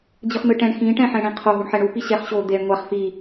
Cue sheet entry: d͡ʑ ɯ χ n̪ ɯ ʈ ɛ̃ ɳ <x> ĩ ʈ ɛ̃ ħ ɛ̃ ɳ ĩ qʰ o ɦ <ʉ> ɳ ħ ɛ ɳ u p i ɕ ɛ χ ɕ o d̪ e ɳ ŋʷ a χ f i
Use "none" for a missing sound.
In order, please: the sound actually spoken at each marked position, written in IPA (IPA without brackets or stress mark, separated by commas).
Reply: x, u